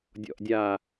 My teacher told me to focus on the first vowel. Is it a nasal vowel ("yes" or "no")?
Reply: no